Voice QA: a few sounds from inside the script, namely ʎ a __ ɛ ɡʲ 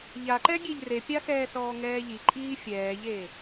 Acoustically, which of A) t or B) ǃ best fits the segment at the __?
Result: B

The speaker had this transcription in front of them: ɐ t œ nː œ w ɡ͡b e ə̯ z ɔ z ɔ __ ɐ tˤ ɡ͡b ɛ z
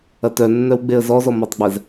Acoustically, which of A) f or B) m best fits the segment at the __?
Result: B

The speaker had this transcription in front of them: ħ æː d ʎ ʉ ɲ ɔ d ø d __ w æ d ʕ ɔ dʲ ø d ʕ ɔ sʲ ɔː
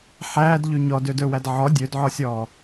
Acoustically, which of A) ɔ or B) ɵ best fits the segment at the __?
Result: B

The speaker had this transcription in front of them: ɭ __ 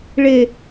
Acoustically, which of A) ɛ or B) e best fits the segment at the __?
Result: B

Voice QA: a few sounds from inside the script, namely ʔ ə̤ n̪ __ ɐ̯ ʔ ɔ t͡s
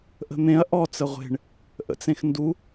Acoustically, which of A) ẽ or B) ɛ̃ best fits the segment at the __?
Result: A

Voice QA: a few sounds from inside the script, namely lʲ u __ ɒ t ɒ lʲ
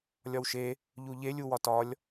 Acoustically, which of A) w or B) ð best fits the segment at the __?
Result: A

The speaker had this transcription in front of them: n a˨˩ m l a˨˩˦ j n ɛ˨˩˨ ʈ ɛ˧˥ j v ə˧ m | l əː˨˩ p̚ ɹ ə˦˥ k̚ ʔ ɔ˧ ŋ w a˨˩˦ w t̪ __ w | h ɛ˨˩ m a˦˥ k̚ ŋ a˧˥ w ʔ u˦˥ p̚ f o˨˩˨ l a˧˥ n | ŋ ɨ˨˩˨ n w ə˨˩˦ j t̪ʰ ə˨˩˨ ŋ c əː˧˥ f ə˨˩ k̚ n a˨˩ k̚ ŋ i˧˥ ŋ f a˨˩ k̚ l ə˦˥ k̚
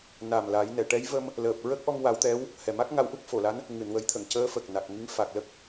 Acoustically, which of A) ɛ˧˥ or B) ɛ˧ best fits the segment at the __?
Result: A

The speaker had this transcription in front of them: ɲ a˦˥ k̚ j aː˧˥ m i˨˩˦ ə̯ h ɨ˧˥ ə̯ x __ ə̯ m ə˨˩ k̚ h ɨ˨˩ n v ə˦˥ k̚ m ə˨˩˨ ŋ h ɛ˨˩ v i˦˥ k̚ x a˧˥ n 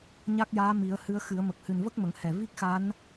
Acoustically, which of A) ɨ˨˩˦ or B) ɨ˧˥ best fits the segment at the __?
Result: A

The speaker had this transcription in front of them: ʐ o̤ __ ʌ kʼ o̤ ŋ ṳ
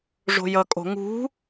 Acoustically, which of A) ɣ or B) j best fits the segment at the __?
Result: B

